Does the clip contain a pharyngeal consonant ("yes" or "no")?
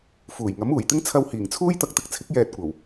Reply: no